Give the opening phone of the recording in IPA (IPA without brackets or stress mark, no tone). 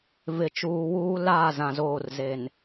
v